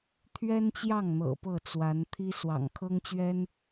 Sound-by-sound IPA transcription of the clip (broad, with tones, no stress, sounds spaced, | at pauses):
t̪ʰ ɥ ɛ˥ n t͡ɕ j ɑ˥˩ ŋ n̪ ɤ̰˨˩ p ɤ˥˩ t͡s w a˧˥ n t̪ʰ i˥ s w ɑ̰˨˩ ŋ kʰ ɤ˥ ŋ t͡ɕ ɥ ɛ˥ n